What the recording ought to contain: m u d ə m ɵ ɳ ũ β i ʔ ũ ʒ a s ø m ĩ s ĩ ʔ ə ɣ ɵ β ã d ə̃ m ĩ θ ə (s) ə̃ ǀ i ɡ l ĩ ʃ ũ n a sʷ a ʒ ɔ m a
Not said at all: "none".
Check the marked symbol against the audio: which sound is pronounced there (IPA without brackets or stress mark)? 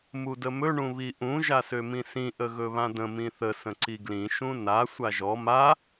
s